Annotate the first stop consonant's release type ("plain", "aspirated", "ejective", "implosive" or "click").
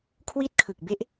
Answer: aspirated